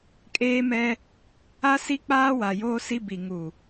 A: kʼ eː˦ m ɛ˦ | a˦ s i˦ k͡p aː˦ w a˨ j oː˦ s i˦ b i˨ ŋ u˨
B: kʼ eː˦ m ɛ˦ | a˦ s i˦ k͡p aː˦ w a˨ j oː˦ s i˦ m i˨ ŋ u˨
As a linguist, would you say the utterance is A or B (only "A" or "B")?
A